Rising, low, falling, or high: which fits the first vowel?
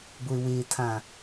low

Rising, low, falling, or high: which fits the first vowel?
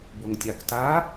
low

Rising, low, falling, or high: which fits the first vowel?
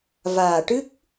low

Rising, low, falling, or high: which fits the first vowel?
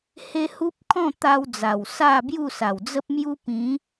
high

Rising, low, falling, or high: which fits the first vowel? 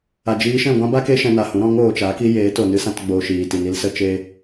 low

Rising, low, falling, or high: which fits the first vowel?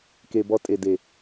low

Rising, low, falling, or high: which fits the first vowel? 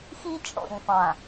high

